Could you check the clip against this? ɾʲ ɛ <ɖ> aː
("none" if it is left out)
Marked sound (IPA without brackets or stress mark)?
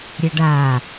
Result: ɖ